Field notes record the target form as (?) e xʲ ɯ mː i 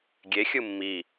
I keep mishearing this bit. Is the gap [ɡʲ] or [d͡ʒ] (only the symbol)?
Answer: ɡʲ